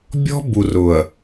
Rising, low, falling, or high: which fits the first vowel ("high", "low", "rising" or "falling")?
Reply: high